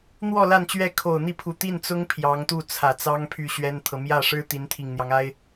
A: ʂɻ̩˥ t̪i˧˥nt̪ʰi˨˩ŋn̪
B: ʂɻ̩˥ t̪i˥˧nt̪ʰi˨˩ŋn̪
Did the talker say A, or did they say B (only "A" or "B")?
A